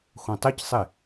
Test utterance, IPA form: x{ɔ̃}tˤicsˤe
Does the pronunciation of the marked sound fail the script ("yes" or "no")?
yes